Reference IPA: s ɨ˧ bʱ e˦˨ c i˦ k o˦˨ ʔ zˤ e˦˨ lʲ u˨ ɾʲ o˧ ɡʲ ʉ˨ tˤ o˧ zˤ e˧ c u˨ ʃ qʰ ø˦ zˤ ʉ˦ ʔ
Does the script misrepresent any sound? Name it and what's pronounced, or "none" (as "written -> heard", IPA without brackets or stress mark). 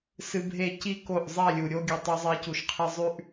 ø˦ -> e˦